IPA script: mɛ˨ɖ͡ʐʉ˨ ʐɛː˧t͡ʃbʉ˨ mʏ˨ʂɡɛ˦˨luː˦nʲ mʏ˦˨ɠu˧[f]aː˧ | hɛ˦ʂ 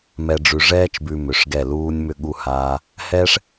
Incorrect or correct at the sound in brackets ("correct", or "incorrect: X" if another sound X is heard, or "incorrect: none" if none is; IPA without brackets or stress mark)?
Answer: incorrect: h